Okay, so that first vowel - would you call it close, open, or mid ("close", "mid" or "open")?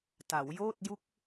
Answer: open